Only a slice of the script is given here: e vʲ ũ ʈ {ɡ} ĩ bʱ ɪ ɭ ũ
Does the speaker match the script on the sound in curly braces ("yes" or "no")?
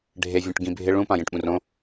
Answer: yes